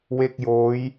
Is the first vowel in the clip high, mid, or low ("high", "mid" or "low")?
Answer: mid